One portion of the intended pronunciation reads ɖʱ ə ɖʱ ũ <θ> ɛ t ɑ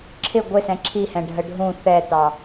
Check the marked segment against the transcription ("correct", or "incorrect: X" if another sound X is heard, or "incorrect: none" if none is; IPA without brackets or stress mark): correct